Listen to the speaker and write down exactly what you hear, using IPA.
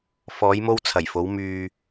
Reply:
f ɔː˨˧ j m o˧ w t͡sʰ ɐ˨˩ j f o˨˧ w m yː˨

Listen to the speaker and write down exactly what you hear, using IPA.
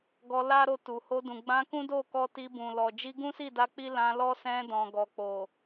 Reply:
ɡ ɔ˧ l a˦ ɾ o˧ t u˨ h o˧ d ũ˨ ɡ͡b ã˧ k ũ˦ d o˦˨ k ɔ˧ t i˧ b ũ˨ l ɔ˨ d͡ʒ i˧ ɡ ũ˦ s i˦˨ d a˧ k͡p i˦ l ã˧ l ɔ˦ s ɛ̃˧ d ɔ̃˨ ɡ ɔ˨ k͡p o˨

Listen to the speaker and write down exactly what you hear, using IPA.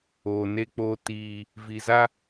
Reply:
oː˨ n e˦ k͡p oː˦ t iː˦ | v i˨ z a˦

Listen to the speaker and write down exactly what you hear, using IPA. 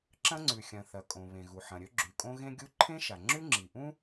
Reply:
ǁ ɐ̃˥ ŋ͡ǀ ʉ˩ xʲ ɐ̃˩ θ ɐ˩ kʼ õ˩ β ẽ˩ ɣ u˩ ħ ɐ̃˩ ɾʲ ɵ˥ ɡ͡ǁ ʉ˩ kʼ õ˥ ɣ ẽ˥ ɡʲ u˥ ǃʰ ẽ˥ ʃ a˩ ŋ͡ǁ ʉ˥ ŋ͡ǁ i˩ ʔ ũ˥

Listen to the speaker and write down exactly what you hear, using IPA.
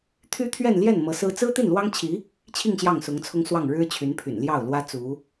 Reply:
t̪ʰ y˥ t̪ʰ ɥ ɛ˥˧ n l j ɛ˥˩ n m ɤ˧˥ s ɹ̩˥ t͡s ɹ̩˥ t̪ i˥˩ n l w ɑ˥ ŋ t͡ɕʰ i˧˥ | t͡ɕʰ i˥˧ ŋ ɕ j ɑ˥˩ ŋ s ʊ˧˥ ŋ t͡sʰ ʊ˥ ŋ s w ɑ˥˩ ŋ ɻ ɻ̩˥ t͡ɕʰ y˧˥ n pʰ y̰˨˩ n l j ɑ˥˩ ʊ̯ l w ä˥ t͡s u˧˥

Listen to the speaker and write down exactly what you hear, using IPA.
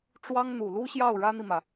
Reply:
ʈ͡ʂ w ɑ˥ ŋ n̪ u˨˩ l u˥ ɕ j ɑ˥˩ ʊ̯ ɻ ä˥ n̪ i˨ m ä˩

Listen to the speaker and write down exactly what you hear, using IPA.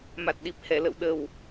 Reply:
m a˨˩ t̚ ɗ i˨˩ p̚ h ɛ˧˩ l ə̰˧˨ w ɗ ə˨˩ w

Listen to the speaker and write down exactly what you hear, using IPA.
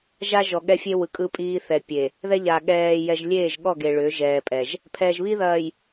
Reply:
ʒ a˦ ʒ ɔ˨ ɠ ɛ˦ fʲ e˦ w ɯ˨ kʼ ɯ˦ pʼ iː˦ θ ɛ˨ pʲ e˨ | ð ɛ˦ ʎ aː˨ ɠ ɛː˨ j ɛ˨ ʒ lʲ eː˦˨ ʒ ɠ ɔ˦˨ ɡ e˨ ɭ ʏ˨˦ ʒ ɛː˨ pʼ ɛ˨ ʒ | pʰ ɛː˨ ʒ β i˦ ð ɐː˨ j

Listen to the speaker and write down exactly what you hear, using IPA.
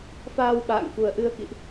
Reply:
f aː˧ w ɓ a̰ː˧˨ ŋ f u˨˩ ə̯ ʔ ɨ˧ ə̯ k ḭ˧˨ ʔ

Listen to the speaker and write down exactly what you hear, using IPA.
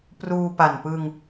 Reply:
p r uː˧ p a˨˩ n p ɯ˧ ŋ

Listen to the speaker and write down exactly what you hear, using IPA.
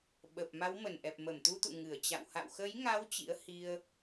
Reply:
ɓ ə˨˩ p̚ m a˨˦ w m ə˧˩ n ʔ ɛ˨˩ p̚ m ə˧˩ m t̪ u˧ t̪ ṵ˧˨ ŋ ɨ˧˩ ə̯ t͡ɕ a̰˧˨ w h a̰˧˨ w x ə˨˦ j ŋ a˨˦ w t͡ɕ ḭ˧˥ ə̯ h i˧ ə̯

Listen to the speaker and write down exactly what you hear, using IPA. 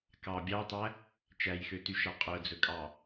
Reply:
k ɑ bʲ ɑ tˤ æ | t͡ʃ æ j x ø t y ʃ ɑ qʼ œ d͡z ɵ kʼ ɑ

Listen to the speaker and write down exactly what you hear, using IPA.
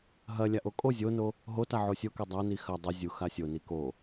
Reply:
ɦ ɐ lʲ a ʔ o kʼ o zʲ o n o | ɦ o t a ʕ o sʲ o k e dˤ a n i x ɐ dˤ e zʲ u x a sʲ o n i k o

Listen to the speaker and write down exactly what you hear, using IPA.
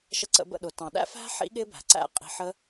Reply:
ʃ ə˧ ǀ ə̰˧ b ə̰˦˨ ɗ ʊ˨ t ɑ̃˨ ɗ æ̰˦ f æ̤˦ ħ ḭ˦ ɠ ɪ˦ b æ̤˨ ǀ æ̰˦ qʼ i̤˧ ħ ə˦

